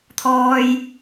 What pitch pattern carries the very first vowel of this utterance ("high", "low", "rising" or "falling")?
high